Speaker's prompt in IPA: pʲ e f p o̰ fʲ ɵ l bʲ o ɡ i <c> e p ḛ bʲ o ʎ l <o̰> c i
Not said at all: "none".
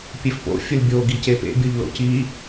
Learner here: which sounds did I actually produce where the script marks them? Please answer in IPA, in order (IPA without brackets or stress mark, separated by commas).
c, o̰